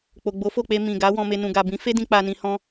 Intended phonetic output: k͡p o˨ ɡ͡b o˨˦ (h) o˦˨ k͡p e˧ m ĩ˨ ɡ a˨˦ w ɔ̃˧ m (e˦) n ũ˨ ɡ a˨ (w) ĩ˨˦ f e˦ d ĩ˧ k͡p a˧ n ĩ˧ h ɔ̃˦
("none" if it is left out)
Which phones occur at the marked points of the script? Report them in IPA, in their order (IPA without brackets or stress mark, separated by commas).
f, e˧, b